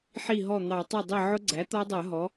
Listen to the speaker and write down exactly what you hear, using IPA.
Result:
ħ i˥˩ ɦ ɔ˥˩ n̪ ɑ˧˩˧ tˤ ɛ˥˩ dˤ i˥˩ ʕ ʊ˦˥ ɡ͡ǀ æ˩˥ t̪ ɔ˦˥ dˤ ɜ˧˩˧ ɦ ɔ˩˥

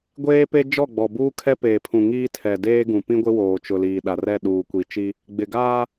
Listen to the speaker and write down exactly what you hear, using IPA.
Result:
ɡʷ eː˦ p e˦ d͡ʒ ɔ˦˨ ɡ͡b ɔ˨ b uː˦ kʰ ɛ˦ p eː˨ pʰ ũ˨ ŋ iː˦ tʰ ɛ˨ d eː˦ ɡ ũ˨ p ĩ˦ ɡʷ ɪ˦ w oː˨ t͡ʃ ʊ˨ l iː˨ ɗ a˨ r ɛ˦˨ ɗ uː˨ kʷ i˨ t͡ʃ i˦ | ɡ͡b ɪ˨ ɡ aː˦

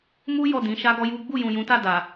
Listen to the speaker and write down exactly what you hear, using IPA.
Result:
m u˦ j ɔ˦˨ d ĩ˨˦ ʃ a˦ ɡ ɔ˦ j u˦ ɡ͡b u˦˨ j ũ˨ j ũ˨˦ t a˦˨ d a˨

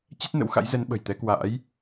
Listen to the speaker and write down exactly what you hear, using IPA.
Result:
t͡ɕ ɛ˦˥ t̚ n ə̰˧˥ w x a̰˧˥ j z ɛ˨˦ n ɓ ə̤˨˩ j t̪ ɛ˨˦ k w a̰ː˧˥ j

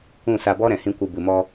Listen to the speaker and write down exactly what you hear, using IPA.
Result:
ũ˦˨ s a˧ b ɔ˦ ɾ ɛ̃˨ h ĩ˦ kʷ ɨ˧ b ɨ˨ m ɔ˧

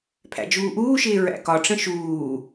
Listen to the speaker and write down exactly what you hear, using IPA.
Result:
pʰ æ̰ d͡ʒ uː ʔ uː ʃ ɪː ɹ æ̰ k ɒ ʈ͡ʂ ə̃ ʃ uː

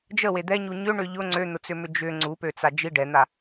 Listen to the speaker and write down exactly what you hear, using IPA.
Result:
d͡ʒ ə w e d̪ ɛ ɲ u ɲ ʏ ɳ ʏ ʎ ʊ ŋ͡ǀ ø n̪ ʊ t͡s ʏ m ʏ d͡ʒ ʏ ŋ͡ǀ u p ø t͡s a d͡ʒ i ɖ ɛ n̪ a

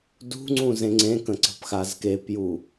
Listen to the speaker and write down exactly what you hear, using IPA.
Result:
d ṳ ŋ͡ǀ ũ z ẽ ŋ͡ǀ ẽ k ə̃ ǀ ə̤ p x a z k e p j u

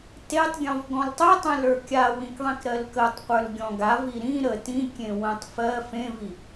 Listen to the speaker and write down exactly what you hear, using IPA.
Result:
t e tˤ ɡʲ ɔ̃ v ɡ ɔ̃ l tˤ i tˤ ẽ l ə˞ kʲ a w ĩ k ðˤ ĩ k ɾ ɜ l k ə tˤ qʷ ə˞ l ɡʲ ɔ̃ ɡ a v i ɾ ĩ ɾ ə t ĩ kʲ ẽ w ə̃ tˤ f ɜ f ẽ v i

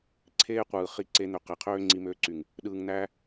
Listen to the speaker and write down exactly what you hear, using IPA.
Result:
ǀʰ eː˦ qʷ ɯː˨ χ i˧ ǀ e˧ n̪ ø˨ q e˨ qʰ øː˦ ŋ͡ǀ i˧ m øː˧ ǀ y˨ ŋ | ɗ ɯː˨ ŋ n̪ æː˧

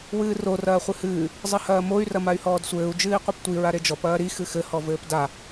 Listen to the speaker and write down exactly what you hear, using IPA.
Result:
w ɨː r o r ɐː χʷ ɨ h ɨː | zˤ ɘ h ɐː m o y̯ r ɐ m a y̯ h ɔː d sʷ ɘː u̯ d͡ʒ ɨː i̯ qʷ e p tʷ i ɹ a ɾ e d͡ʒ ɔ p ɐː ɾ i x ɨ x ɘ h ɔ v ɘː p d a

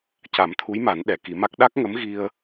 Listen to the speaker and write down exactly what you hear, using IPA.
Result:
c a˨˩˦ m t̪ʰ u˧˥ j m a˨˩˦ n ɗ ɛ˨˩˨ k i˨˩˦ m a˦˥ k̚ ɗ a˦˥ k̚ ŋ ə˧˥ m ɣ i˧ ə̯

